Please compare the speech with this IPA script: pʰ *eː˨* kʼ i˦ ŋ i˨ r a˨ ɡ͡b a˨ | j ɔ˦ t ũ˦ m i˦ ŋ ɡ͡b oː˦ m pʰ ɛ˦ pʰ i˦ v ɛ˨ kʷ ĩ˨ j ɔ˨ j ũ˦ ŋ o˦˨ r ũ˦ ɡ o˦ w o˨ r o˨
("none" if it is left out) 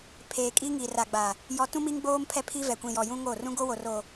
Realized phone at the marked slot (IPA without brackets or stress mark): eː˨